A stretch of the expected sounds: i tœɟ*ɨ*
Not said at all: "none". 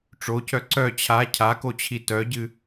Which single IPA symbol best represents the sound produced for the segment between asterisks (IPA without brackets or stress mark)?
ɨ